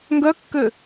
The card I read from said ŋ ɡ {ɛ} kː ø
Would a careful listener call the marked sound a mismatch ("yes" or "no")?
yes